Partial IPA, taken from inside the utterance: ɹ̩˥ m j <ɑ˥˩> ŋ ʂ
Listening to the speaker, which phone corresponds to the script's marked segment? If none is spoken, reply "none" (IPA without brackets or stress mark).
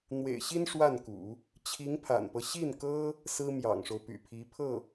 ɑ̰˨˩